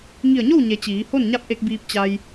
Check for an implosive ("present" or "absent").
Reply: absent